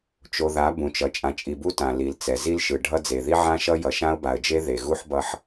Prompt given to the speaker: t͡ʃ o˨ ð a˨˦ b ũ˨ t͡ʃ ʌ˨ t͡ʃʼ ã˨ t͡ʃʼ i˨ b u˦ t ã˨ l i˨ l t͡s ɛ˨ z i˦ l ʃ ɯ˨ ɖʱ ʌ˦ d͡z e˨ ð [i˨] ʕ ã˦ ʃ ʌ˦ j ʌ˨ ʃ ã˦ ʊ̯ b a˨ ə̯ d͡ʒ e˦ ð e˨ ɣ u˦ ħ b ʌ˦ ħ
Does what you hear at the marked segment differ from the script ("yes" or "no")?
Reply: yes